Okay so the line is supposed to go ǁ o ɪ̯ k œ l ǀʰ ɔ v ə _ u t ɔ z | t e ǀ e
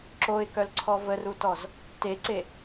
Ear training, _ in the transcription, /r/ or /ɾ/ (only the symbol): r